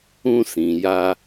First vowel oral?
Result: no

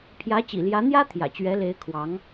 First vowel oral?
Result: yes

